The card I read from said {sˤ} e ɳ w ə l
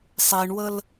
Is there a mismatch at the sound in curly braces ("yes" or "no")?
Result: no